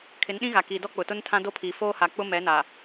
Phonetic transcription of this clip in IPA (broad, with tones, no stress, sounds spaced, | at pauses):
kʰ ɪ˨˦ n ɗ ĩ˦ ɣ a˨ k iː˨ d ɔ˦ k͡p ʊ˨ t ʊ˦ n tʰ ã˦ d o˦ pʰ iː˨ f oː˦ h a˨ k͡p ʊ˦ m ɛ˨˦ n a˨